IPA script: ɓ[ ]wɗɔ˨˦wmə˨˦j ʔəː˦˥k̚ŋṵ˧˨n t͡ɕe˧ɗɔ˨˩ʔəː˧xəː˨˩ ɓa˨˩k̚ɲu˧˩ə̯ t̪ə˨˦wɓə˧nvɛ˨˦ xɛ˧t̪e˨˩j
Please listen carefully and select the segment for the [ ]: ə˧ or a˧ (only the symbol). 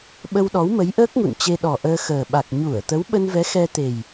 ə˧